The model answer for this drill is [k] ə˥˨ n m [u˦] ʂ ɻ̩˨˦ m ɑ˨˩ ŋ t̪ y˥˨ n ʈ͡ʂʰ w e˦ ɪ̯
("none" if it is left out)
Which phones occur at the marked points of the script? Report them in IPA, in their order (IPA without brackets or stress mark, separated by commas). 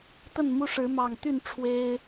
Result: t̪, u˦